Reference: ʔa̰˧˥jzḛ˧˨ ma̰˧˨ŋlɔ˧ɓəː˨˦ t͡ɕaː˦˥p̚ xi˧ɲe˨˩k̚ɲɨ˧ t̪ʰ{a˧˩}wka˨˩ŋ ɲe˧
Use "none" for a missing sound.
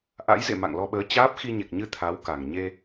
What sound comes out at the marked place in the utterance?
a˨˦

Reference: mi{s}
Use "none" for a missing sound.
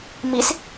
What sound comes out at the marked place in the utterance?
s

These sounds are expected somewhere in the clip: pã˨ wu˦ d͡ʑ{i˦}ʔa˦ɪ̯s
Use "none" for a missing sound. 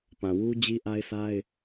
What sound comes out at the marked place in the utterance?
i˦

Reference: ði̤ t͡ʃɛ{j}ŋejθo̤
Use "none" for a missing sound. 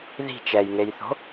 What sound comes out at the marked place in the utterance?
j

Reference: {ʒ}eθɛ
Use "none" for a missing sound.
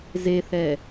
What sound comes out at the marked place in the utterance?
z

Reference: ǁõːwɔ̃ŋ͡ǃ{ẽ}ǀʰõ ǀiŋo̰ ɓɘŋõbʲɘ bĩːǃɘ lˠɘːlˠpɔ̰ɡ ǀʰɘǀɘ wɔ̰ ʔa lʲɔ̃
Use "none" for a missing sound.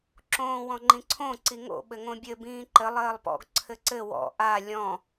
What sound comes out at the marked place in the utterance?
ĩ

